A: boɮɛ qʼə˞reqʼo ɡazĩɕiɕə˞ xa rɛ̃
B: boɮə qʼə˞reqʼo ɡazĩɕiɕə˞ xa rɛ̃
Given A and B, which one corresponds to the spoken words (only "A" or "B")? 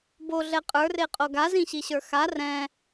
A